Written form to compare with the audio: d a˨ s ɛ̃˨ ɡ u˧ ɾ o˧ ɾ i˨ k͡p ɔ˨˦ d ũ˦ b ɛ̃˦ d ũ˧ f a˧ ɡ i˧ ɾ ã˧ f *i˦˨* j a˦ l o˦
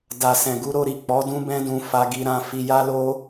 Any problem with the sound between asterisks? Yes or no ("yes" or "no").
yes